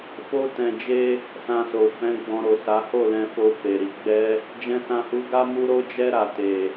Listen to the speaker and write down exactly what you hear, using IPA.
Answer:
f o˦ t ɛ̃˧ d͡ʒ e˦ | s ã˧ s o˨ f ɛ̃˨˦ ɡ͡b ɔ̃˧ ɾ o˨ s a˨˦ h o˦˨ l ɛ̃˧ f o˧ f e˨ ɾ i˨˦ ɡ͡b ɛ˦ | d͡ʒ ɛ̃˧ s ã˧ h u˧ ɡ a˦ m u˦ ɾ o˦ d͡ʒ ɛ˦ ɾ a˧ t e˨

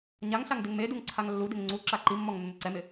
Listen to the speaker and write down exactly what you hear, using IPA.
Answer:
ɲ a ŋ ɬ a ŋ d ɪ ŋ m e d u ŋ ǀʰ a ŋ lː u d ɪ ŋ ŋ͡ǀ u ǁ a ǃ i mː ɔ ŋ nː ʊ ǀ ɛ m ɪ

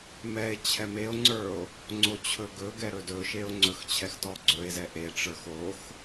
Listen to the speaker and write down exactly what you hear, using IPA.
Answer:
m ɛ e̯ t͡ɕʰ ɛ m e o̯ ŋ͡ǀ ə˞ o̯ | ŋ͡ǀ o t͡ɕʰ ɵ ɡ ɵ ɡ ɛ ɾ ɵ d ɵ ʃ e o̯ ŋ͡ǀ ɵ x t͡ɕʰ ɛ x t ɔ ɡ͡ǀ ɵ e̯ z ɛ ʔ e ʈ͡ʂ ə˞ x o x

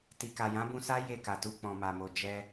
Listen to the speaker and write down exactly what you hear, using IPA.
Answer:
t i˨ k a˨ j ã˨˦ b ũ˧ s a˦ j e˦˨ k a˨ t u˧ k͡p ɔ̃˨ m a˨ m o˨ d͡ʒ ɛ˧

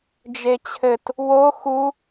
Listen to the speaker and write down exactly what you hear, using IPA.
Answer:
d͡ʒ e t͡ɕʰ ɘ t | w o x u

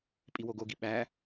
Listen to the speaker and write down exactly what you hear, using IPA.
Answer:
pʼ i w o ɡ o ɡ i ɓ æ

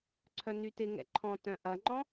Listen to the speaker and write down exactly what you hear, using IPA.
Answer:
ǀʰ œ n y t ɪ ŋ ɛ̰ ǃʰ ɔ̃ t œ̃ ʔ ɐ ŋ͡ǃ ɔ̃

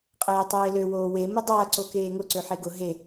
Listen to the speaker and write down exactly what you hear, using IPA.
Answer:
qʼ eː tˤ eː l ø w oː w e m ʊ dˤ ɐː ǀ o k eː ŋ ʊ ǀ ø ħ e ɡ ʊ ɦ e

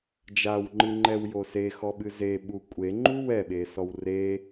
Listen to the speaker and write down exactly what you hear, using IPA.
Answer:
d͡ʒ a w ŋ͡ǃ ɨ ŋ͡ǃ ɛ w j o s e x ɔ ɓ ɨ z e ɓ u kʷʼ e ŋ͡ǃ u w ɛ ɓ e s ɔ w r e

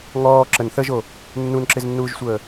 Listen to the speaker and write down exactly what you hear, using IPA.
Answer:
ŋ ɔː ǁ ə n θ ə ʒ o | nː u n ǁ ɪ z nː uː ʒ sʷ əː

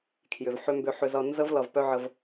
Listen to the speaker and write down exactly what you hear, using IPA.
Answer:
kʰ j ʏ˨ v ħ ʏ˧ m b ʏ˧ ħ ʏ˧ z ʌ˧ n z ə˦ v l ʌ˧ v p œ˦ ʕ ə˧ v

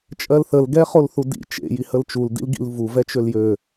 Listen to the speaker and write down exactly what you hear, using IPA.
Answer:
t͡ʃʼ ɜ l θ ə l ɡ ɛ χ o l θ u d ḭ t͡ʃ ḛ j i h ə l t͡ʃ u l d ḭ l ɡ ḭ l v u v ɛ t͡ʃ ø l j ø

